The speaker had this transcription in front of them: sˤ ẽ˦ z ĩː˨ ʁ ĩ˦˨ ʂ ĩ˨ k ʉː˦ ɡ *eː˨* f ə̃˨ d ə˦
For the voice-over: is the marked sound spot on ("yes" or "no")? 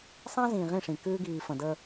no